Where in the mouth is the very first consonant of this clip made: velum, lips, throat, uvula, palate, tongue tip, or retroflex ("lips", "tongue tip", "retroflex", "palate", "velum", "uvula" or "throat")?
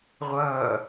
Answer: uvula